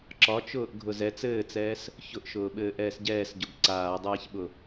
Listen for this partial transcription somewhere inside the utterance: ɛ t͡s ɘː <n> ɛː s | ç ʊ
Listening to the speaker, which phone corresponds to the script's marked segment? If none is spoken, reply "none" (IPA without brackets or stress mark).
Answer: t͡s